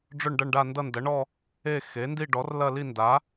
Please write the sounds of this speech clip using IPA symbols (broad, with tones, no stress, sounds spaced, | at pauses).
ɖ͡ʐ ʊ˥˧ ɳ ɖ ʌ˥˧ ɳ ɖ a˥˧ n d ʌ˥˧ n d ɐ˩˥ ɳ ɔ˥˧ | e˥˧ x e˩˥ n d i˥˧ ɖ ɔ˩˥ r l ɐ˥˧ l i˥˧ n d a˩˥